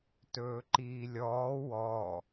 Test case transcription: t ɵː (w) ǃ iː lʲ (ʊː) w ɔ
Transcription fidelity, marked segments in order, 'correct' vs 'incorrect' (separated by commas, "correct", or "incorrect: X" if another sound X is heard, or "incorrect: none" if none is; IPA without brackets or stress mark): incorrect: none, incorrect: ɔː